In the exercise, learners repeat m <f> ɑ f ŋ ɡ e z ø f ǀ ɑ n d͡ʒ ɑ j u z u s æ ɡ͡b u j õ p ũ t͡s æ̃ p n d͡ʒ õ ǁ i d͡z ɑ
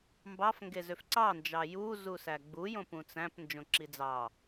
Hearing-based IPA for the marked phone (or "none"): b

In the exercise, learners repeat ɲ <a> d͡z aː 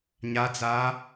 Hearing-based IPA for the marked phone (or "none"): a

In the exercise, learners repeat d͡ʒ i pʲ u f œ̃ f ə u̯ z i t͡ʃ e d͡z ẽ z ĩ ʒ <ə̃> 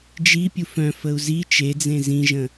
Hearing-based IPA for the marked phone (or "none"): ə̃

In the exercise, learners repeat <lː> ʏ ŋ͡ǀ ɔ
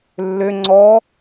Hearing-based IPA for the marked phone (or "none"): lː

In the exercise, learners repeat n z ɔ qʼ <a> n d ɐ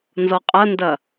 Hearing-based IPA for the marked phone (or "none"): ɐ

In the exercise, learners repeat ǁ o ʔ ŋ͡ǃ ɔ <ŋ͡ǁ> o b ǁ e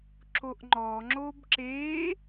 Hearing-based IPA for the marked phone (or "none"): ŋ͡ǁ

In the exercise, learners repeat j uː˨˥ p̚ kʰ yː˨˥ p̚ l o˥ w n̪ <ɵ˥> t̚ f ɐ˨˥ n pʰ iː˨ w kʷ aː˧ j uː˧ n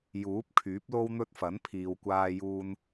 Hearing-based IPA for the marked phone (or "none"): ɵ˥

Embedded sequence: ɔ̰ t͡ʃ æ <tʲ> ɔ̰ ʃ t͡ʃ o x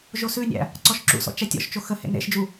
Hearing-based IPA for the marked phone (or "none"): tʲ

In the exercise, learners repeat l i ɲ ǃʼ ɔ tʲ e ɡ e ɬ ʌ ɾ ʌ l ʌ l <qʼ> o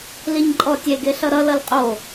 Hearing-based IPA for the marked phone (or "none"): qʼ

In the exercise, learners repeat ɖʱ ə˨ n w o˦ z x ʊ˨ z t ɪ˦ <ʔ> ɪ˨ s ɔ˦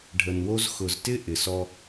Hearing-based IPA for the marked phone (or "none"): ʔ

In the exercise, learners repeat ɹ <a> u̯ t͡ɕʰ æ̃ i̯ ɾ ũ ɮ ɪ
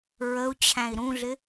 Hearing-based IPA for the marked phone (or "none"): ə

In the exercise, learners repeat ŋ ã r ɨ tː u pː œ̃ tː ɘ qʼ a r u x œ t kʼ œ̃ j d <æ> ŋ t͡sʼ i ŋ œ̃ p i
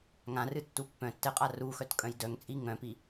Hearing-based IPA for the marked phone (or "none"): œ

